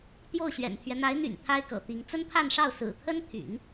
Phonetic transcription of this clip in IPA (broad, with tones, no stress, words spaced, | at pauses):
t̪jo˥˩ʊ̯ɕɥɛ̰˨˩nt̪ʰɥɛ˦ n̪a˧˥ɪ̯n̪y̰˨˩n t̪ʰa˥ɪ̯kɤ̰˨˩t̪i˧˥ŋ t͡sə˥npʰa˥˧nʂɑ˥˩ʊ̯ sɹ̩˨˩t̪ʰə˥nt̪ʰy̰˨˩˦n